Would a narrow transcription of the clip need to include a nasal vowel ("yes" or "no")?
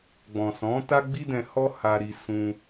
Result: yes